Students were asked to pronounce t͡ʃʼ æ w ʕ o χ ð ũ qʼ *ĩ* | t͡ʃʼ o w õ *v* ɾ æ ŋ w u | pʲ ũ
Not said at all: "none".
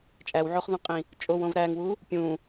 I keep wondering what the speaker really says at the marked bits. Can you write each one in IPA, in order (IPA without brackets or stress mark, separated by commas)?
ĩ, v